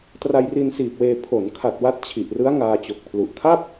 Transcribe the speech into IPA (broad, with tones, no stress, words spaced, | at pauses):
tra˧jri˧nsiː˨˩p̚weː˧ pʰo˩˦n kʰa˨˩t̚ wa˦˥t̚ t͡ɕʰi˨˩ʔrɯ˦˥a̯ ŋaː˧t͡ɕo˨˩k̚pʰlu˨˩ʔ kʰa˥˩p̚